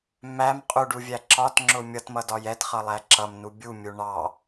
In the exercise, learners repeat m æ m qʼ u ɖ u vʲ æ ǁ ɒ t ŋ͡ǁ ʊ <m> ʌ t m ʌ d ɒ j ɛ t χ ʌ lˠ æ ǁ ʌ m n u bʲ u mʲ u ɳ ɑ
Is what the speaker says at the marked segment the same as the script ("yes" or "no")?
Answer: no